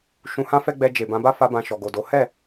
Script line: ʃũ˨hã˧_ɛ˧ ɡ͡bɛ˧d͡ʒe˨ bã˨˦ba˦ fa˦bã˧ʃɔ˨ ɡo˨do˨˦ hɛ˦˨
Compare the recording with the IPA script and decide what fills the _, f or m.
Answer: f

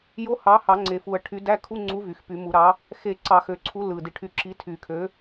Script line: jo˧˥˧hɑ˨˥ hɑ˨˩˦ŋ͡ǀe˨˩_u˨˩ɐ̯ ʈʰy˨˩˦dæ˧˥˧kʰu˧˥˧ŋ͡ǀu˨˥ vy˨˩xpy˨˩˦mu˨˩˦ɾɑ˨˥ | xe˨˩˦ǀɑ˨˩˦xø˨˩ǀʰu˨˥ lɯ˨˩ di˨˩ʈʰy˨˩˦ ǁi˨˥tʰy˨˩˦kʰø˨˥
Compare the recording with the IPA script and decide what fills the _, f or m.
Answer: f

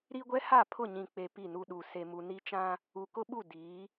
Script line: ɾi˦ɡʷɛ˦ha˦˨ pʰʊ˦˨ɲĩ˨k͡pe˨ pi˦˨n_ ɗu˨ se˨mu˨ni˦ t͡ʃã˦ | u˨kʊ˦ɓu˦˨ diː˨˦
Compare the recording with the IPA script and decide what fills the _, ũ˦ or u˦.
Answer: u˦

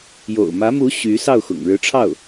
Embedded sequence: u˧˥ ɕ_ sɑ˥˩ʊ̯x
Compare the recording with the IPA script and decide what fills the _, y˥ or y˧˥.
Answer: y˧˥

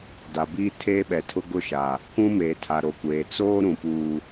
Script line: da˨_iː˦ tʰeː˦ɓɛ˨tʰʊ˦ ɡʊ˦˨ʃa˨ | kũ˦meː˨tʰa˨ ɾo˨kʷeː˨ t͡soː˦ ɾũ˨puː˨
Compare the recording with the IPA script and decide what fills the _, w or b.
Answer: b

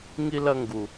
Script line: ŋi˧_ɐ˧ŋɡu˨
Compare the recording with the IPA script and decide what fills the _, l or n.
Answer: l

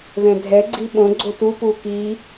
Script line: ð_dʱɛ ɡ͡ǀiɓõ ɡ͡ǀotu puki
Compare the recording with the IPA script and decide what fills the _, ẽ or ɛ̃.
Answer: ɛ̃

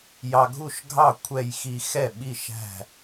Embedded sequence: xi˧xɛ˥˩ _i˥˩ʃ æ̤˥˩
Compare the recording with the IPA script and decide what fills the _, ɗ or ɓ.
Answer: ɓ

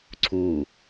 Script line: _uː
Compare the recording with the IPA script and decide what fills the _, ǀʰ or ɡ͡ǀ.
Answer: ǀʰ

